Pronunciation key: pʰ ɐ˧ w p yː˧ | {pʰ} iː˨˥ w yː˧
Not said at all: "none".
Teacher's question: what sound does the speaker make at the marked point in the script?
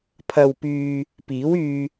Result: p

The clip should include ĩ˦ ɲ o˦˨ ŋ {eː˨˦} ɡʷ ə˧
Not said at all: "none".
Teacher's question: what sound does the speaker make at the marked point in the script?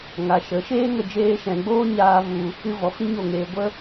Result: eː˧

